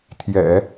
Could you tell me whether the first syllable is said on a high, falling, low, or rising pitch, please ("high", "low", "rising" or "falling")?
low